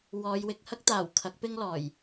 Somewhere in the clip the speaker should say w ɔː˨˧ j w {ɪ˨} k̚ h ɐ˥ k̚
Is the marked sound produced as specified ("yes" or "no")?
no